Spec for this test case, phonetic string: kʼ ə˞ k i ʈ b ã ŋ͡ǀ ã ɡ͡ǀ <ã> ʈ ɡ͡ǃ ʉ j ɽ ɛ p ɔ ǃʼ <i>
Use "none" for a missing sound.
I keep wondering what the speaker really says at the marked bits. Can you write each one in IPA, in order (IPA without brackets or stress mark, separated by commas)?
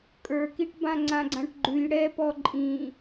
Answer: ã, ĩ